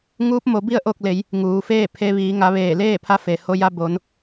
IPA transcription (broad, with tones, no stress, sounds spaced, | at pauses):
ŋ uː˧˥ p̚ m o˩˧ b i˥˨ ə̯ ʔ o˥˨ k̚ l e˩˧ j | ŋ uː˩ f eː˥˨ pʰ e˧ ʋ iː˩˧ ŋ a˩˧ ʋ eː˧˩ l eː˥˨ pʰ a˧ f e˩ h o˧ j a˧ b o˩˧ n